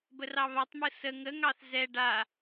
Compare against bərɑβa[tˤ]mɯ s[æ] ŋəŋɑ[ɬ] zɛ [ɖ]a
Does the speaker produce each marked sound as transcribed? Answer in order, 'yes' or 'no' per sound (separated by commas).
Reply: yes, no, no, yes